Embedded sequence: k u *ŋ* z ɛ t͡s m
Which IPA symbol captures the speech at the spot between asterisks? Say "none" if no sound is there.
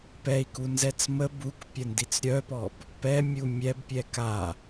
n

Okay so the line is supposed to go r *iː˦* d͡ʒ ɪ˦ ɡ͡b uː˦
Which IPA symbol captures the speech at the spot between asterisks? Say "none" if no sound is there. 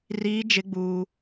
iː˦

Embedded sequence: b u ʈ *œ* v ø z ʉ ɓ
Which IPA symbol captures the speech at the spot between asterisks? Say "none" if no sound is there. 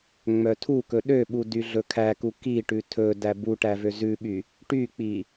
æ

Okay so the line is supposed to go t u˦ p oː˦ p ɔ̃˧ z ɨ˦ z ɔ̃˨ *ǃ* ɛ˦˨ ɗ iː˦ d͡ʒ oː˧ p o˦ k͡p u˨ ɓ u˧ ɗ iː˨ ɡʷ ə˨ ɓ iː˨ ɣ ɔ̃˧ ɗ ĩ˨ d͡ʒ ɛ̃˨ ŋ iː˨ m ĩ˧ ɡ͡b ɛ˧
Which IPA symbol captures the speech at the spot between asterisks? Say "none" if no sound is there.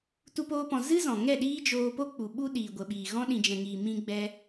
ŋ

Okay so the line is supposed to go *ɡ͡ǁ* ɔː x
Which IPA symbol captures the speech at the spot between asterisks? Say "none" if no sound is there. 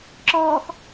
ǁ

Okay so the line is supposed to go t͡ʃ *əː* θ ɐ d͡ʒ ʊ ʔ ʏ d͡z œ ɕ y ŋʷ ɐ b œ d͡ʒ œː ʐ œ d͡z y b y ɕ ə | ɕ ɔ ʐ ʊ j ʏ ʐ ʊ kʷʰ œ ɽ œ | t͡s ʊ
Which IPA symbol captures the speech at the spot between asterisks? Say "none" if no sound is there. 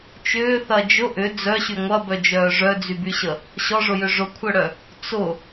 ʏː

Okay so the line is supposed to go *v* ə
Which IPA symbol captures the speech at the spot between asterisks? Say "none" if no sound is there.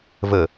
v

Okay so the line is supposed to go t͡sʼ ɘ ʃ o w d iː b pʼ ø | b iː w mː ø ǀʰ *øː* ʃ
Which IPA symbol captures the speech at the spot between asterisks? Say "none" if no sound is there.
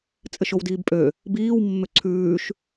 ʉː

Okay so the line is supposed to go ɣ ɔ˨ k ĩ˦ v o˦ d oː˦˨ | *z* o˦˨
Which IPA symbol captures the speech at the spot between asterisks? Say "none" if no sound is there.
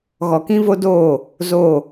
z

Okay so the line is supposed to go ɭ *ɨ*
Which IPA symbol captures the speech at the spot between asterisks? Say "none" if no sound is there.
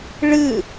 ɨ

